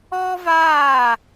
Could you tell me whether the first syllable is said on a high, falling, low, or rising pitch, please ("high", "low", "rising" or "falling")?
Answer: high